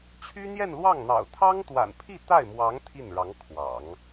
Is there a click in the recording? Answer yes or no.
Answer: no